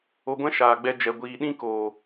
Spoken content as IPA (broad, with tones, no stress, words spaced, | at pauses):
o˧ɡʷɛ̃˦ ʃaː˨ɡ͡bɛ˧ d͡ʒɛ˨ɡʷiː˨ ɗĩ˦ koː˨